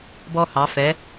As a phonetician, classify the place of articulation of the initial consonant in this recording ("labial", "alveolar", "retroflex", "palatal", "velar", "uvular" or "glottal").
labial